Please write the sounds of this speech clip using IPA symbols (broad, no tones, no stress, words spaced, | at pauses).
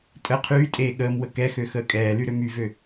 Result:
tʼə qʰyːtʼeː ɠəːmwə kɛxø xəːkʼɛːly ɾømyvø